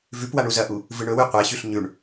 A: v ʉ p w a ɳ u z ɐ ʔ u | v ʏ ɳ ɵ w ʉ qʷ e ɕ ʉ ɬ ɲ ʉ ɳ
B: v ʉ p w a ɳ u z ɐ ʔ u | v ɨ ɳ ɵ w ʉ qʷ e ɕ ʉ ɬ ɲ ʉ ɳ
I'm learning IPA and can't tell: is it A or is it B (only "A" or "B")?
B